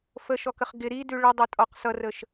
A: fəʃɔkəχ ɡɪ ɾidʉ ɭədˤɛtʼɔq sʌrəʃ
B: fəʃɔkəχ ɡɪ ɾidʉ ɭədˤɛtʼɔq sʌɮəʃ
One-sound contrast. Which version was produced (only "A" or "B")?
A